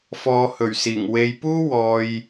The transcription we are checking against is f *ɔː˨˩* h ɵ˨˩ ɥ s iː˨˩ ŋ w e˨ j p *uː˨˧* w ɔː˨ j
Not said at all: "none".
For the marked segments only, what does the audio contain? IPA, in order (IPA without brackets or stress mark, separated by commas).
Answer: ɔː˨˧, uː˥